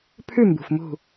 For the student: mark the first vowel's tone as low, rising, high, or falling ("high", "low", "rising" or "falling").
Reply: falling